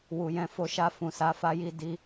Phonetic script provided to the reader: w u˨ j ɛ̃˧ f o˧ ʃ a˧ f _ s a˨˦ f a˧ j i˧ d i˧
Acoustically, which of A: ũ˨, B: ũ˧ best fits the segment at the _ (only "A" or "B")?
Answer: A